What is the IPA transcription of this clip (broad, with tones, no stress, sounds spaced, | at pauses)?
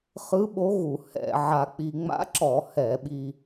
χ ɯ˧˥ ɓ o˧˥ ɣ u˧˩˧ h ɛ̰˧˩˧ ʕ a˧ k͡p i˧ ŋ͡m a̰˧˥ ǁ ɔ˧˩˧ h ɛ˧˩˧ ɓ i˧